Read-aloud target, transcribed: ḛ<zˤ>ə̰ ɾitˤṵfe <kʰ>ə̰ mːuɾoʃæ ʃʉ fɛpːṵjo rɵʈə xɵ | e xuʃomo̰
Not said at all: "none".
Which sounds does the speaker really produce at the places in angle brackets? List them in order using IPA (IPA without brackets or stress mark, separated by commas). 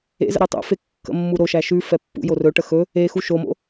z, kː